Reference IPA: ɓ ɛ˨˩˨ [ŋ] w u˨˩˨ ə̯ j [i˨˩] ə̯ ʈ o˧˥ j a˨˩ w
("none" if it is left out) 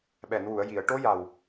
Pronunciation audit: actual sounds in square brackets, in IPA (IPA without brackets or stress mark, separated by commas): n, i˨˩˨